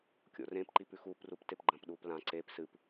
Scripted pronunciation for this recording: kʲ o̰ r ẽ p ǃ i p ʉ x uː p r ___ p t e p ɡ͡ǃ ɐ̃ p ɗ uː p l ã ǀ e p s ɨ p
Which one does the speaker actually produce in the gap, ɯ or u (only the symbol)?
u